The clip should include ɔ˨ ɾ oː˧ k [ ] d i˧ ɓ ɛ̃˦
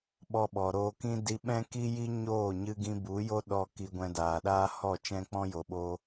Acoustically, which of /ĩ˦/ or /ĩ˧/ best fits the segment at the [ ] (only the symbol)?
ĩ˦